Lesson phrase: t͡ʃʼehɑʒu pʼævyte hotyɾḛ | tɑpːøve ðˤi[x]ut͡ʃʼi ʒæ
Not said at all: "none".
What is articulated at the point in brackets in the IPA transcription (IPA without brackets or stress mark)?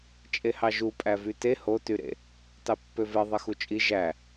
x